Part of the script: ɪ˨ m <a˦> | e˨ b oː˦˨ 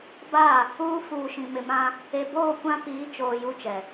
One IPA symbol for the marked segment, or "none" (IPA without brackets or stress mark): ã˦